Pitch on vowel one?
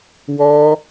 high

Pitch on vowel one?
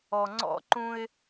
low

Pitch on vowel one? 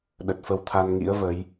low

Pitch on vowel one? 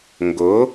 rising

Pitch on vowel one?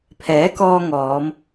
rising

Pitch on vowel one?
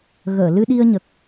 low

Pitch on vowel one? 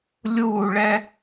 falling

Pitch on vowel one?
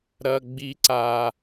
high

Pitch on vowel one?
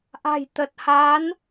low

